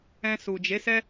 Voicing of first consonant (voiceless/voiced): voiceless